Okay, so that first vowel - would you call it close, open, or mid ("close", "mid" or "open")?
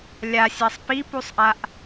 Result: open